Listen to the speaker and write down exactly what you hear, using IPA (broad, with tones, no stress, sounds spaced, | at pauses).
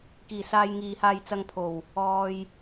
k iː˨˩ s aː˧ j ŋ iː˨ h aː˧ j t͡s ɐ˧ ŋ pʰ o˨˩ w | ɔː˨ j